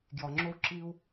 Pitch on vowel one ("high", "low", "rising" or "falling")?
low